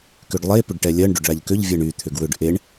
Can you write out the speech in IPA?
k ʏ ɖ lˠ e p ʏ ɖ ʈ ɛ lʲ ɜ ɳ ɖ ʏ ɖ ɭ a ʎ k ʏ ʎ vʲ ɜ ɳ y t̪ʰ ʏ ɡ w ʏ ɖ ʔ e ɳ

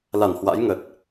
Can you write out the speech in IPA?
l a˧˩ n h w a̰˧˥ j ŋ ə˨˩ t̚

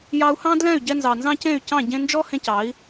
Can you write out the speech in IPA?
j ɑ˧ u̯ h ɑ̃˦ d l ɛ̃˦˨ y̯ ɟ ɛ˧ n z ɑ˨ n z ɑ̃˦ c ẽ˦˨ y̯ c ɑ̃˦˨ ɟ ẽ˧ n d͡ʒ ɔ˦ h ẽ˧ c ɑ˨˦ i̯

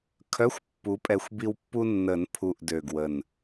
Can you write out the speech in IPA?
kʰ œ˧˥˧ xʷ pː u˨˥ pʼ ɛ˧ xʷ b i˧ w pː u˧ nː ə˨˩˦ n pʰ u˨˩ ʔ d ø˨˩ ɡ w ə˨˩ n

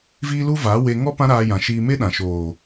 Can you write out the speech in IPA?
v iː˦ l u˦ v aː˨˦ w e˧ ŋ ɔ˦ p ã˦ ɾ aː˧ j ã˨ ʃ iː˧ m e˦ ɗ ã˨ ʃ oː˨

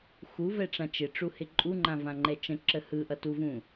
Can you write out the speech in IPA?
x u v ɛ ʈ͡ʂ ã t͡ʃ ɪ ʈ͡ʂ u h ɪ ǃʼ u ŋ͡ǃ ã v ã ŋ͡ǃ ɛ t͡ʃ ə̃ ǁ ə h ɯ ʔ ʌ t u v ũ

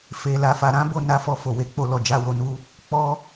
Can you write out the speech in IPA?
f e˨ l a˨ f a˨ ɾ ã˨˦ b o˦˨ n a˨˦ f ɔ˧ f o˨ w e˨˦ k͡p o˧ l ɔ˨ d͡ʒ a˨˦ w o˧ n u˧ | k͡p ɔ˧

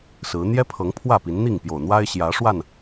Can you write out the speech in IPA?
s ɹ̩˨˦ n̪ j ɛ˦ pʰ ɤ˨˦ ŋ pʰ w ä˥˨ p i˨˦ n n̪ i˥˨ ŋ p j o˨˩ ʊ̯ n̪ w a˦ ɪ̯ ɕ j ä˨˦ ʂ w a˥˨ n

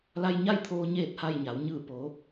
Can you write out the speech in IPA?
l a˧ j ɲ a˥˨ j t̪ʰ oː˧ ɲ eː˥˨ t̚ h a˥˨ j ɲ a˩˧ w ɲ ɯː˧˩ p oː˩˧

